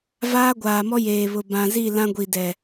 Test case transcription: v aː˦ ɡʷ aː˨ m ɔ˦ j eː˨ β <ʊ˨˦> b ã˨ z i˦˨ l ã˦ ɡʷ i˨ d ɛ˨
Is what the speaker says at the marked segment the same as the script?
no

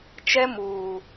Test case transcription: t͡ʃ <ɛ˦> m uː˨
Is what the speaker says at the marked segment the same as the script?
yes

